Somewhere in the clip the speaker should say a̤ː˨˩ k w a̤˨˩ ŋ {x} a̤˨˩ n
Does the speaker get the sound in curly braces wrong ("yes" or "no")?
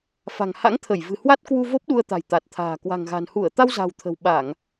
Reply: yes